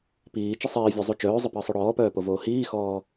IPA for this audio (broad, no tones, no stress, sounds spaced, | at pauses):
p iː t͡ʃ ə sˤ iː vʲ ɔ zˤ u t͡ʃ œː zˤ ə p əː sˤ o ɽ ɔː p œː p o v oː h iː x ɔː